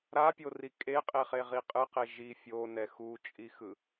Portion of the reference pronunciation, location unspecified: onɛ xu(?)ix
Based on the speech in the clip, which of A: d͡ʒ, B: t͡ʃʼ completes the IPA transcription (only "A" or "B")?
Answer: B